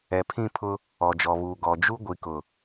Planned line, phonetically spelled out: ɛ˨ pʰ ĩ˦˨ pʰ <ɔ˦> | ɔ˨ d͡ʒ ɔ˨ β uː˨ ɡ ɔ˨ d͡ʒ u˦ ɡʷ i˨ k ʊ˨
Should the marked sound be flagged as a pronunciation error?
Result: yes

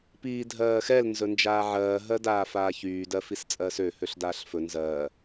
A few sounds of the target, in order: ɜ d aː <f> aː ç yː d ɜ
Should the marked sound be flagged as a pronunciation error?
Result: no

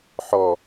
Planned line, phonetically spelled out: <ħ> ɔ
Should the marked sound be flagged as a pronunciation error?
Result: no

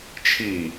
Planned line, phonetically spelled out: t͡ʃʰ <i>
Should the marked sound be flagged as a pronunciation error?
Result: no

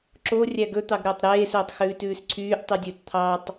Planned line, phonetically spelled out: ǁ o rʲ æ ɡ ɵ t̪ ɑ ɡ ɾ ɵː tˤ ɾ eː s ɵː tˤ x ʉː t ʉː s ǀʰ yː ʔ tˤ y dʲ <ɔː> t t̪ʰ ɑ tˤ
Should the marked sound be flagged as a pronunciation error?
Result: yes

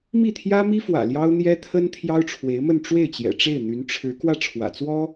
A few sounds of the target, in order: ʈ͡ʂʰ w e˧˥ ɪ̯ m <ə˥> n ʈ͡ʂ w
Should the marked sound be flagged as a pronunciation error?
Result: yes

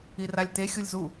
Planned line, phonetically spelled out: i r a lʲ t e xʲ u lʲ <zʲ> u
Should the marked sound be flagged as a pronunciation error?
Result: yes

